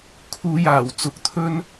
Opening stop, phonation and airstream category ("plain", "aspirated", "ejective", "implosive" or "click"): aspirated